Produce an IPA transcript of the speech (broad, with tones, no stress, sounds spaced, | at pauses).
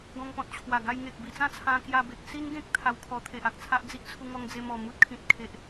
ɡ ɔ̃˧ ŋ p ɔ̃˨ t̚ t͡ɕʰ w a˨˩ ɡ a˧ j ŋ e˨ k̚ b i˧ t͡s ã˥˧ t͡sʰ ã˧ k j a˧ b e˨ k̚ s i˦ n ɡ ẽ˦ k̚ t̪ʰ a˧ w kʰ ɔ˧ t̪ʰ e˨ ʔ a˨ k̚ t͡sʰ a˦ ʔ d͡z i˦ ʔ t͡sʰ u˧ ŋ ɔ˧ ŋ d͡z e˧ m ɔ˨˩ m u˦ t̚ kʰ ĩ˨ t̚ kʰ e˨ ʔ